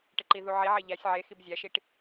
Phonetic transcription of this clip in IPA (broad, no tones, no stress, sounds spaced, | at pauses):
ʈ e ǃ i ð u ʕ i ʕ e ʎ æ sʲ ʕ e x i b zʲ æ ʃ i ʈ